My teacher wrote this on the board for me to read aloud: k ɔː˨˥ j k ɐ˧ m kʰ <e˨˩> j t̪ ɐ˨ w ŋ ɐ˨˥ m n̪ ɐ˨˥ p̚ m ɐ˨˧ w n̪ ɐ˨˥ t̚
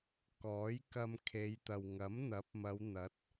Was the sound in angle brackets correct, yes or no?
no